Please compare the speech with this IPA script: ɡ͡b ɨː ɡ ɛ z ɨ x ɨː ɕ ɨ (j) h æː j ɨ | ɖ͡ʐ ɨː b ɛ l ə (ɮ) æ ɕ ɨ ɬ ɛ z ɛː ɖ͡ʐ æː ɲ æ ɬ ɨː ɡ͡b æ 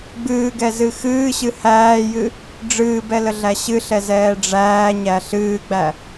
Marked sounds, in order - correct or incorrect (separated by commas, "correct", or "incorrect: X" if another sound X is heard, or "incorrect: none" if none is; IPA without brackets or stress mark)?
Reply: incorrect: none, correct